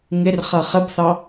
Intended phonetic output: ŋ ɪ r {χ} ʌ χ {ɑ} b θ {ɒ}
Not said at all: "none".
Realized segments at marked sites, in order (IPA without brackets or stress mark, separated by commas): χ, ə, ɑ